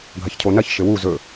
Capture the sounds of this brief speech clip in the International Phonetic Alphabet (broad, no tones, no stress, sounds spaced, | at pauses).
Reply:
ɡʱ ɐ ç cʰ o n ɐ ç ʃ ɘ w u z ɵ